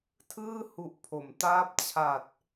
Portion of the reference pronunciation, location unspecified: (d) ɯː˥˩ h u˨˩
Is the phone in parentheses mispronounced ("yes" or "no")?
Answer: yes